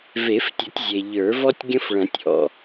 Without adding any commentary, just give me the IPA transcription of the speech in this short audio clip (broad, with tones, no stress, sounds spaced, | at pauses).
v e˨˩˦ f tʲ ə˨˩˦ tʲ zʲ e˩ ʎ ə˞˨˩˦ v ɔ˥ tʲ ɡʲ ə̃˥ f ɭ ɐ̃˨˩˦ tʲ ʔ ɔ̰˩